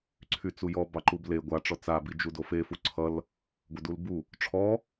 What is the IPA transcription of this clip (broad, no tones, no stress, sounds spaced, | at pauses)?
ǀʰ y t͡s u j ɔ b ɑ ǃ u b l e ɡʷ a ʈ͡ʂ ɔ t͡s a b i d͡ʒ u d o f e f u ǀʰ ʌ l | ɡʷ ʌ d u l b u | ʈ͡ʂʰ ɔ